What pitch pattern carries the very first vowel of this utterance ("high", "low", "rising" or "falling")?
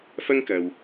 high